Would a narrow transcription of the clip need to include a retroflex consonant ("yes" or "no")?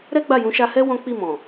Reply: no